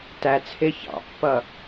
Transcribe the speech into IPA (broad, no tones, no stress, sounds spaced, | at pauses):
t æ t͡sʰ ɪː ç ɑ̰ pː ʌ